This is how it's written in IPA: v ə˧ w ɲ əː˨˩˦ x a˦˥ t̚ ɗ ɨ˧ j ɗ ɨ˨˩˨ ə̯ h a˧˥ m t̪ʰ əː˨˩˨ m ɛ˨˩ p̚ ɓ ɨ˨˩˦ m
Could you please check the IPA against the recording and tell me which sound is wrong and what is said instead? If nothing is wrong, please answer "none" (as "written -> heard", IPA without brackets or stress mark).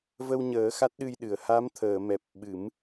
none